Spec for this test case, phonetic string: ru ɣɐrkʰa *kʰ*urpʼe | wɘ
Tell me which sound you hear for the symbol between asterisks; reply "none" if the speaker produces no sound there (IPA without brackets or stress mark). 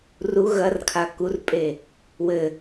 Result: k